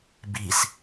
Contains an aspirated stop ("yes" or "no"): no